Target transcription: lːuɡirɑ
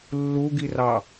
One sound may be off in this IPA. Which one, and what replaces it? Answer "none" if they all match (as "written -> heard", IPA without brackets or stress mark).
none